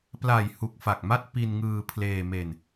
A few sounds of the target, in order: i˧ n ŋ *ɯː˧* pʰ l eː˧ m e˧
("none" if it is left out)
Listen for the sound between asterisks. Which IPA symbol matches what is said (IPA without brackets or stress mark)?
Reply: ɯː˧